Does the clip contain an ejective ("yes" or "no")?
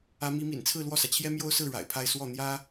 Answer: no